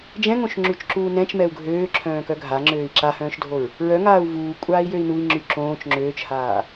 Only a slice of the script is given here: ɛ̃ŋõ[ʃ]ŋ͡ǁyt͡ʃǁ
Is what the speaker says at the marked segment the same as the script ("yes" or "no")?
yes